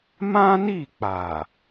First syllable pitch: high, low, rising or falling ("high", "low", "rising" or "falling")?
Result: high